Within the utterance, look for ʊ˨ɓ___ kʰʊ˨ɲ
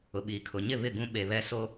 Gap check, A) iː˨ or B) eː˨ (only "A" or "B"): A